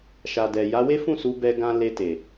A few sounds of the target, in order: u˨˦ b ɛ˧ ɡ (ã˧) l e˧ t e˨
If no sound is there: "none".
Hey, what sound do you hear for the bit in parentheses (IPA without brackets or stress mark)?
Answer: ã˧